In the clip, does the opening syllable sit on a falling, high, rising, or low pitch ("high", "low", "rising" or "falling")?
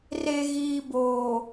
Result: low